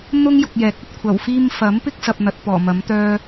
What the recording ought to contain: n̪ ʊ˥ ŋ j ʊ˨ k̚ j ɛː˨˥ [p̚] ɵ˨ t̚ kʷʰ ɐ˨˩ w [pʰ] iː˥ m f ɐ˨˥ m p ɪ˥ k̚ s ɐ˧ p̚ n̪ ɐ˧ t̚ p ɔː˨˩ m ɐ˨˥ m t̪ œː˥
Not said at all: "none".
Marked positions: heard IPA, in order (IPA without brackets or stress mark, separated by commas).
k̚, f